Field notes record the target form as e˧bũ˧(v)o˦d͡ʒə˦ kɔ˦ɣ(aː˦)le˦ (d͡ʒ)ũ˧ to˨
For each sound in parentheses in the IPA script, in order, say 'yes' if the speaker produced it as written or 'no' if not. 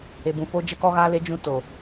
no, yes, yes

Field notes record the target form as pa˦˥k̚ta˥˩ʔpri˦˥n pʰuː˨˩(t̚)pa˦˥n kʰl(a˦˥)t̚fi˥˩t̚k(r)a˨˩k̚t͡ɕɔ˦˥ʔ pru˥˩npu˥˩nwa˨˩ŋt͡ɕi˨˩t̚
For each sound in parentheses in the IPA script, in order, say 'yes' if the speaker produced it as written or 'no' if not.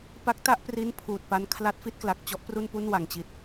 yes, yes, no

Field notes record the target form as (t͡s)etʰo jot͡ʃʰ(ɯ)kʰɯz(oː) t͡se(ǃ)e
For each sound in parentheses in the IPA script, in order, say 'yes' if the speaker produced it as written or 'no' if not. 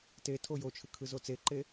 no, yes, no, yes

